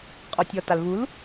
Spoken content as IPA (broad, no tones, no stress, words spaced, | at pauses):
qʼɔtʲɔtalvul